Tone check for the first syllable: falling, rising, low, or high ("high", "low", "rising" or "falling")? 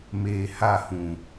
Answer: low